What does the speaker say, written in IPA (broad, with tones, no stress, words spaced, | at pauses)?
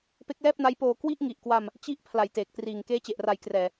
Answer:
pe˦˥k̚lɛː˥˩p̚na˦˥jpoː˧ kwi˥˩ʔŋi˨˩ʔkwa˧m | t͡ɕi˦˥ʔ pʰla˨˩jteː˨˩k̚triː˨˩ŋ keː˦˥t͡ɕe˨˩ʔra˩˦jkrɛː˨˩